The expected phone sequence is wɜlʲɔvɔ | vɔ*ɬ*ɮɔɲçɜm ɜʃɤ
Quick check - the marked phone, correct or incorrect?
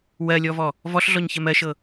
correct